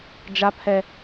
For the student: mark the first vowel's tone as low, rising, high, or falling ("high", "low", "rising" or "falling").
high